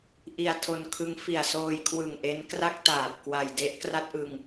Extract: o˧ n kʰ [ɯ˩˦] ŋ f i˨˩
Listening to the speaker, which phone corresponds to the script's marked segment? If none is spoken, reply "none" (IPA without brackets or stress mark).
ɯ˦˥